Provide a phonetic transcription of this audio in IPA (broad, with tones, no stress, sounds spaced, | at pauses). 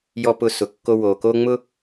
j ɔ˧ p ʊ˧ s ʊ˨ kː o˧ w o˨ k o˦ ŋ͡m ʊ˦